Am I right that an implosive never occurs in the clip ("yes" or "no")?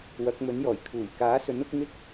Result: yes